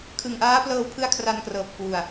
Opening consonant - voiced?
no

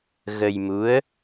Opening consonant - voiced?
yes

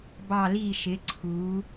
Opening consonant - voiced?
yes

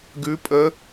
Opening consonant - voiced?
yes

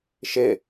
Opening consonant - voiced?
no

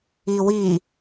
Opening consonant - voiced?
yes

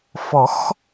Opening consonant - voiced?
no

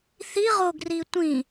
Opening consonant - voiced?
no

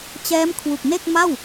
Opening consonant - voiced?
no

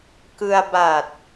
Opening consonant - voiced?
no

